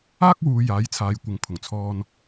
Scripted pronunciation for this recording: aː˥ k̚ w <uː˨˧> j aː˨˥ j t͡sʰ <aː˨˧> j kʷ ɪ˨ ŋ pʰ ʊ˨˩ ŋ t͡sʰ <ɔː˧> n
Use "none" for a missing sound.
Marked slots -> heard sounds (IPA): uː˨˧, aː˨˧, ɔː˧

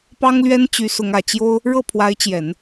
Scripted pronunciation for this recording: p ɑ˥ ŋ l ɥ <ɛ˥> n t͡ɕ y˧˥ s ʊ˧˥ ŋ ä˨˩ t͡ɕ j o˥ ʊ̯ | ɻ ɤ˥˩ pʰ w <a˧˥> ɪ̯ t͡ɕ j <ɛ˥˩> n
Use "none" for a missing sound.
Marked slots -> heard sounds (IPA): ɛ˥, a˧˥, ɛ˨˩˦

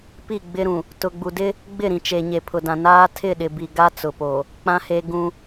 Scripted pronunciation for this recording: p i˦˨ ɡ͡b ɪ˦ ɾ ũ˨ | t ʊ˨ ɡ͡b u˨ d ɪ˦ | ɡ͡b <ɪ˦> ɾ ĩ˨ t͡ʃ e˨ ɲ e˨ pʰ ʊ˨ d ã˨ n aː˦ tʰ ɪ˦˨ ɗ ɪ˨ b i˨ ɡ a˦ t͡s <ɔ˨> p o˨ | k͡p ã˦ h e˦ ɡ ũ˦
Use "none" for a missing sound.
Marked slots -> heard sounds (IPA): ɪ˦˨, ʊ˨

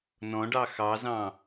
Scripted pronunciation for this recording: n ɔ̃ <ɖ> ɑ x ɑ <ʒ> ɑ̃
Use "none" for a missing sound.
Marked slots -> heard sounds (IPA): ɖ, z

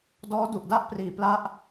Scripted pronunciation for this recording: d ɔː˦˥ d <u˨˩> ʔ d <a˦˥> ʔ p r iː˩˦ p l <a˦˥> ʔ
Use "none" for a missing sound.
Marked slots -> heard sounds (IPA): u˨˩, a˥˩, a˦˥

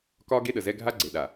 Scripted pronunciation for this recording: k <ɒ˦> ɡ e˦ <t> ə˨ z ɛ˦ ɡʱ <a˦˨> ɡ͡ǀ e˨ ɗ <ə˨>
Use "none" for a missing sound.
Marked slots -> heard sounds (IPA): ɒ˦, ɗ, a˦, a˨

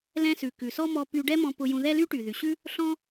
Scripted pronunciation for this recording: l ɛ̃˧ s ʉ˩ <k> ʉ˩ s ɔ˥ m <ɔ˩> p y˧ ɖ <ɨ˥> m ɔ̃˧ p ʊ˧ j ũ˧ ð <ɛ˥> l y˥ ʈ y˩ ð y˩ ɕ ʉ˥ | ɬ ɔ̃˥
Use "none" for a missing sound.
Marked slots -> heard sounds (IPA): k, ɔ˧, ɛ˥, ɛ˥

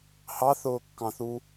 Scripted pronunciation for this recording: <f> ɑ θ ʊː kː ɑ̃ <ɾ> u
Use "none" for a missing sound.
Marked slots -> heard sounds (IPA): h, θ

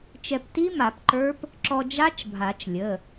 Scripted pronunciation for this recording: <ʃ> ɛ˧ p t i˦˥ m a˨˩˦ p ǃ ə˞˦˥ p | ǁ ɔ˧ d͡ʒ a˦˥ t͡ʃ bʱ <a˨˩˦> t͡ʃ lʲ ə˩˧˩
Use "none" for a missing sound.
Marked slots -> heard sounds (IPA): t͡ʃ, a˨˩˦

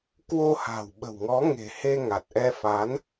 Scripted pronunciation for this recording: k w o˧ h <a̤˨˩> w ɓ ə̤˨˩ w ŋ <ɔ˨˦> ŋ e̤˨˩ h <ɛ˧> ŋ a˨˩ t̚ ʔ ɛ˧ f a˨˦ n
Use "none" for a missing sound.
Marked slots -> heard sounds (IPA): a̤˨˩, ɔ˨˦, e˧

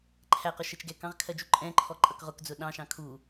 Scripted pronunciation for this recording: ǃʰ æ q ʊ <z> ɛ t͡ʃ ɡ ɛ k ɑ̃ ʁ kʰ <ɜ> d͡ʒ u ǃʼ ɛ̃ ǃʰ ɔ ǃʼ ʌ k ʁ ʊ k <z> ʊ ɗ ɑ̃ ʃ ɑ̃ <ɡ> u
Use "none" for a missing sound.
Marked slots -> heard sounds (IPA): ʃ, ɜ, d͡z, kʰ

